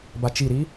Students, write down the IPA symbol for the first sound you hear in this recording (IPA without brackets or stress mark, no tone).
b